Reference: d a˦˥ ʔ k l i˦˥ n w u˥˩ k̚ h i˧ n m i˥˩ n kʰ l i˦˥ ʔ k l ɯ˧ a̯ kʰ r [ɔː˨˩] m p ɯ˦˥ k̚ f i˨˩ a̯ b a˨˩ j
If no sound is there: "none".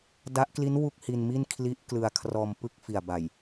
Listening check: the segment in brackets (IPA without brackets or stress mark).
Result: ɔː˧